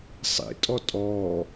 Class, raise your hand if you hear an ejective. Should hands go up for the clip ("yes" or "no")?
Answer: yes